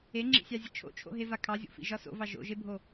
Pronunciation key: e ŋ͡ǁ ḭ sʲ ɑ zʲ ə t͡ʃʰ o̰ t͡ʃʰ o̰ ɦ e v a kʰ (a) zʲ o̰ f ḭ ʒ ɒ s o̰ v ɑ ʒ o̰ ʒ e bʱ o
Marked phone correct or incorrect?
incorrect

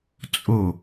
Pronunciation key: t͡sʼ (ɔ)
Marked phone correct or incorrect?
incorrect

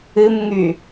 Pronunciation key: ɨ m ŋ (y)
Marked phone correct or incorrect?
correct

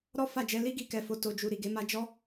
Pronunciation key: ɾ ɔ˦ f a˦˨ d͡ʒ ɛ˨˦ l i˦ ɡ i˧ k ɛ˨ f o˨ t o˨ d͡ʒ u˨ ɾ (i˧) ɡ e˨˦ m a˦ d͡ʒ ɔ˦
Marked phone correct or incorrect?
incorrect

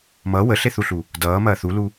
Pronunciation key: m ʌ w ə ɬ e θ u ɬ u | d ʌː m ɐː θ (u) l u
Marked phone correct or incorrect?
correct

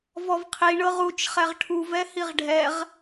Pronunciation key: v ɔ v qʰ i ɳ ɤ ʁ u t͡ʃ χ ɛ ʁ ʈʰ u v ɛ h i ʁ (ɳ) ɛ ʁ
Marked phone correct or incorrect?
incorrect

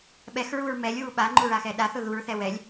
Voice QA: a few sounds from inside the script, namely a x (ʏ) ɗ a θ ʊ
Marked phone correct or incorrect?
incorrect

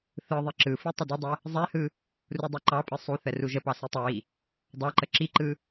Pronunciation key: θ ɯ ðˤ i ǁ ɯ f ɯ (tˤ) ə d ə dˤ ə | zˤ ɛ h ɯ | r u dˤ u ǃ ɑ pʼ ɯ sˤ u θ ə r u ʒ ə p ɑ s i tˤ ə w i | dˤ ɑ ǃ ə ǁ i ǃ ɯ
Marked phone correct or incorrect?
correct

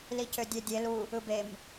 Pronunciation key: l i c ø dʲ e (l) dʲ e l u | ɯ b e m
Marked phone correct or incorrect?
incorrect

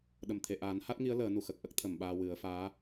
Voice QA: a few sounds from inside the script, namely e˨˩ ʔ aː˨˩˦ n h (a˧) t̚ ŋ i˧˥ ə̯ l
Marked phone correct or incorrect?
incorrect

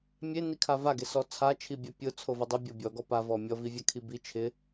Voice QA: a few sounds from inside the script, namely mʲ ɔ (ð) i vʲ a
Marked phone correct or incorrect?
incorrect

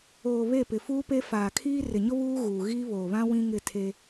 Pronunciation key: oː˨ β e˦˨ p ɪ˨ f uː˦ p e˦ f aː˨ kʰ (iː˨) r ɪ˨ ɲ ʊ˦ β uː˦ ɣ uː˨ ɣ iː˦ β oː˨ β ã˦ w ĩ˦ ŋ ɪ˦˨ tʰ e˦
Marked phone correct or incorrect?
incorrect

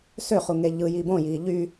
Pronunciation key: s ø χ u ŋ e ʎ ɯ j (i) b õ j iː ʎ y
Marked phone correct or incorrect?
correct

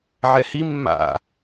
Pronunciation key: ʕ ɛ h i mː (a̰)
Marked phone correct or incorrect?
correct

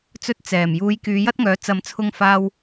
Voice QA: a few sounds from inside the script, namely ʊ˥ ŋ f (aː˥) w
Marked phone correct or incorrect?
incorrect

